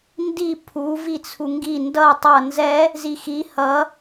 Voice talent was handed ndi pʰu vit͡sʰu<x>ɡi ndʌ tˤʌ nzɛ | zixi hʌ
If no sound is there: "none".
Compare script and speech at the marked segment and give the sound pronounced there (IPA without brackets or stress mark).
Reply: ŋ